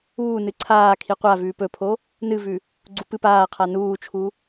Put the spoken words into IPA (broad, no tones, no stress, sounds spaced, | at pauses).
uː n ɨ ǀʰ aː kʰ i qʷ a v ʉː p ɵ pʰ o | n ɨ v ʉ | ɡ͡ǀ u p ɨ p aː qʰ a n uː t͡ʃʰ u